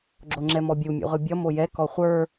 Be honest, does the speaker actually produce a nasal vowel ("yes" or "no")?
no